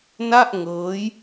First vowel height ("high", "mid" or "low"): low